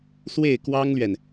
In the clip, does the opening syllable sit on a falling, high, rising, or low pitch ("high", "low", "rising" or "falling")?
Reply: falling